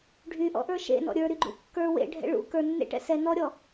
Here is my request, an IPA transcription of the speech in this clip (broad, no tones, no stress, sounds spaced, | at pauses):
ɖʱ y ʔ ɔ̰ ʔ ə˞ ʃ ḛ n ɔ̰ ɾʲ ə˞ ɾ y ɡ͡ǃ ṵ kː ə˞ w ḛ ɖʱ ɛ̰ ɭ ṵ k ə˞ nː ḛ ʈ ɛ̰ s ɛ n ɔ ɾʲ ɔ